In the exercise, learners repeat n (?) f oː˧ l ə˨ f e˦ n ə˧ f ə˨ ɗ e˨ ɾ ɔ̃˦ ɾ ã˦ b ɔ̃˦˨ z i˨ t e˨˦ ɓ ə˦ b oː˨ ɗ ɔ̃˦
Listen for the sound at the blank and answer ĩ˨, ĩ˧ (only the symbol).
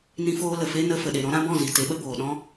ĩ˧